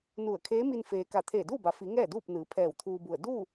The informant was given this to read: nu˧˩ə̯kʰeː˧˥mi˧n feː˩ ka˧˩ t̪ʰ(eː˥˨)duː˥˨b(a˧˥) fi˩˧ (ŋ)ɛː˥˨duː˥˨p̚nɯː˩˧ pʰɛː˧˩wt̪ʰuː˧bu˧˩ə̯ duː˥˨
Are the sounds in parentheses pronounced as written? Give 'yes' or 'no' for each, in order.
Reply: no, no, yes

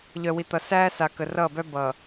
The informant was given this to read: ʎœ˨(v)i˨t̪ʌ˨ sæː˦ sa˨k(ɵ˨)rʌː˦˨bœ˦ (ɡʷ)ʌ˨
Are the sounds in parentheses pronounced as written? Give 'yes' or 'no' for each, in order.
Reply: no, no, no

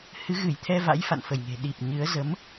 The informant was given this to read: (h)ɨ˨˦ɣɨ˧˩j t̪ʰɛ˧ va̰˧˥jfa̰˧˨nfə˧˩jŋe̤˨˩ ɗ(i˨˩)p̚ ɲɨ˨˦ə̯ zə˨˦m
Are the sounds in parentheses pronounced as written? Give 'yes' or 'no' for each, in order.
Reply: yes, yes

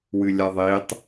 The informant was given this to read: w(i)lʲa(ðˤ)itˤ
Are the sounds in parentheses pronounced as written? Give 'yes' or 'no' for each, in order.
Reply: no, yes

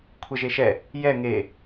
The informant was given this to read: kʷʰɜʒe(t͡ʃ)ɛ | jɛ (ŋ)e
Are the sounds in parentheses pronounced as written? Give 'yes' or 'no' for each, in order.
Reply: no, yes

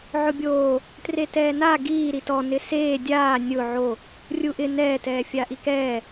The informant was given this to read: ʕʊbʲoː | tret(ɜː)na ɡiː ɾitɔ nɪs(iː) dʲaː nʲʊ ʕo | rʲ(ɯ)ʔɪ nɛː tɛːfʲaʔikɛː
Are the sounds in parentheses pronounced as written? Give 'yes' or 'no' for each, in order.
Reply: no, no, no

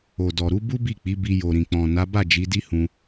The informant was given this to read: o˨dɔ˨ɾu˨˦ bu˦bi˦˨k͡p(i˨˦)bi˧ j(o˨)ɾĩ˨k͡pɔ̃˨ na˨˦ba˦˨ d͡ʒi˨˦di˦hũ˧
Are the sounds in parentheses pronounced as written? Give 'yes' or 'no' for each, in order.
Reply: yes, yes

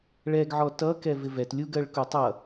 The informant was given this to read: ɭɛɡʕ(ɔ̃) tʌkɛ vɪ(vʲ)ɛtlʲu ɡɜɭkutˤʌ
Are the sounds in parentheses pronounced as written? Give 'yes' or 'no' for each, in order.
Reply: no, no

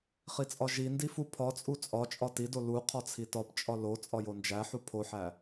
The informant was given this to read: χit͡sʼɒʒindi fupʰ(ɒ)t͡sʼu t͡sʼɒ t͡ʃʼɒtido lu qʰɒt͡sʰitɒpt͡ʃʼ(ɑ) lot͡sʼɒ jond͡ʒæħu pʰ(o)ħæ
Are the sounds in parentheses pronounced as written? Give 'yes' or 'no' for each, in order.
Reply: yes, no, yes

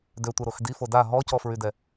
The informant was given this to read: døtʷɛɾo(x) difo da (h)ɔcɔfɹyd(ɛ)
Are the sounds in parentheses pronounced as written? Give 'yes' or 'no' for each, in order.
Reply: yes, no, yes

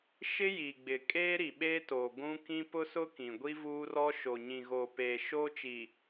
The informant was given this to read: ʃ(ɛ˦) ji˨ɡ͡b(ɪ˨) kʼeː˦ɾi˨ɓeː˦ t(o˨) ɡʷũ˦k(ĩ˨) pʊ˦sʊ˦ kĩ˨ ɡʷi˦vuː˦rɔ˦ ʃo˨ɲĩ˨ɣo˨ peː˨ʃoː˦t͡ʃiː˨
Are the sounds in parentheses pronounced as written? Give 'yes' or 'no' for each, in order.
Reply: no, yes, yes, no

